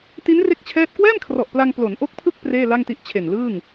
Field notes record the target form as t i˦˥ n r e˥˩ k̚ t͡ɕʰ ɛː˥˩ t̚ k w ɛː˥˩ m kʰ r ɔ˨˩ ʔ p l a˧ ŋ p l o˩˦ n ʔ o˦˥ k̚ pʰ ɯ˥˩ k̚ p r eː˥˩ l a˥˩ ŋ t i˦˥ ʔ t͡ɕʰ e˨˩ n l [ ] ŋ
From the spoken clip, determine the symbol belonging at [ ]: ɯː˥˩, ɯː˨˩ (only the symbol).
ɯː˥˩